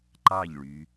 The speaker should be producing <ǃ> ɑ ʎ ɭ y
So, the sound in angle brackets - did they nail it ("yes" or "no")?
yes